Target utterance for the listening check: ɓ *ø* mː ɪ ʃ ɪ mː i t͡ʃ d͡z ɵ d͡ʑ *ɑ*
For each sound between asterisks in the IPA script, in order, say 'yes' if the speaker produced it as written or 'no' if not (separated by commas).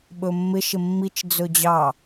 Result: no, yes